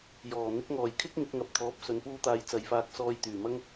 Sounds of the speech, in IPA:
jɔː˨˩ n̪ɪ˨˥k̚ŋɔː˨˩jkʰɪ˥k̚ ŋɪ˨˥k̚ŋɐ˨˥p̚t̪ʰɔː˨˥p̚ sɵ˨˧npuː˥t̪aː˧j t͡sɐ˨˧jfaː˧k̚ sɔː˧jt̪yː˨˩mɐ˥ŋ

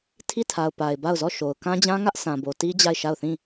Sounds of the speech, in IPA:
tʰi˦˨tʰa˨ʊ̯ pa˨ɪ̯ba˦˨ʊ̯zɔ˦˨ʃo˨ʊ̯ kã˦d͡ʑã˦ŋä˦ʔ sã˨bo˨ti˦ d͡ʑa˦˨ɪ̯ʃa˦˨ʊ̯θĩ˦˨

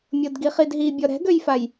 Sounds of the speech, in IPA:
mʲodɡiχidɦi bʲɔɾɛ̤ɡøjfaj

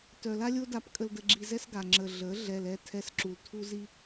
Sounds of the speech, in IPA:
tœ˨la˦lʲo˦da˧p kʼə˧ldə˧ɡ͡ǁi˧zɛ˦s ɡa˨ ŋ͡ǁə˨ ɮə˨˦ ɮɛ˨lɛ˧tʰɛ˧sǁu˨l tʰu˦z i˦

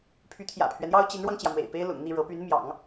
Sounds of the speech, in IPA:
pʰy˧˥t̪ʰjä̰˨˩pʰɥɛ˦n jɑ˥ʊ̯t͡ɕi˧˥nɻwɑ˧ŋt͡ɕjä˩ mwḛ˨˩ɪ̯pe˥ɪ̯lʊ̰˨˩ŋn̪i˥˩ ɻɤ˧˥py˧˥n mjɑ̰˨˩˦ŋ

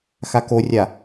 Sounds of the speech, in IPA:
xakorʲa

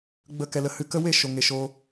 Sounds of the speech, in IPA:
ɡ͡bə˦˨kɛ˧lə˧hɨ˦˨ kə˦we˦˨ ʃo˨ŋe˨ʃo˧

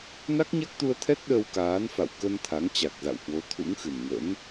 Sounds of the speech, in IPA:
na˦˥k̚ɲa˦˥k̚t̪u˧ə̯t̪ʰɛ˦˥t̚ ɗə˧wkaː˨˦nfa̰˧˨w kə˧n t̪ʰa˨˦ŋt͡ɕa˨˩k̚za̰˧˨whwo˨˦ t̪ʰṵ˧˥ŋxɨ˨˩nŋə̰˧˥n

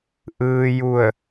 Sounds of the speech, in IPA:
ʔɯː˧ju˧˩ə̯

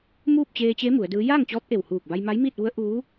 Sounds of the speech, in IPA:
muː˥˨p̚t͡ɕeː˧t͡ɕe˧˥ mu˩˧ə̯dɯː˧˥ jaː˥˨ŋt͡ɕɔː˧˥p̚ ʔe˧˩whuː˧˩k̚ba˧j ma˧˥jmiː˥˨t̚ʋu˧˥ə̯ ʔuː˧˥

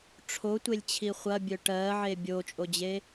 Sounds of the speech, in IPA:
ʈ͡ʂʰotʷelʲt͡ɕʰi χʷɐbʲœ ʈɜʕe bʲot͡ʃʼod͡ʑe

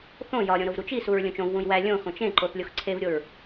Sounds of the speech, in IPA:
θõ jɒɾʲõ ɾovɾut͡ʃisuɹ lʲõt͡ʃõvwũj wæ lʲõxõt͡ʃ ẽǃoθ lʲoxǀʰevɾʲoɹ

